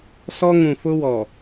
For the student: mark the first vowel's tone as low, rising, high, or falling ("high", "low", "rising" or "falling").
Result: high